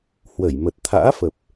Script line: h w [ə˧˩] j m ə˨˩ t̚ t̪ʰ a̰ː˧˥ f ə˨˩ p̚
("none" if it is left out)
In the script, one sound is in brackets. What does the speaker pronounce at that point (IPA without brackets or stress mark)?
ə˧˩